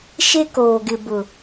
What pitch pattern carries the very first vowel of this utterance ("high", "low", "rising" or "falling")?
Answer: high